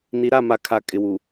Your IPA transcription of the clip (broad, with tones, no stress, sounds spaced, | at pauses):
n i˨ ɾ a˦˨ m a˨ kʰ a˨ kʼ ɪ˨ w u˨